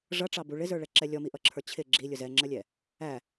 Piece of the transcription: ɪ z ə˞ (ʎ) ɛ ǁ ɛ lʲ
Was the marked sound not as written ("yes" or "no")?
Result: yes